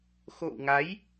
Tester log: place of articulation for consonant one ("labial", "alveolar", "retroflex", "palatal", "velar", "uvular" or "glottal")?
velar